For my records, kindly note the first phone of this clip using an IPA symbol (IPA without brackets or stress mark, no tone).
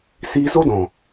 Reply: s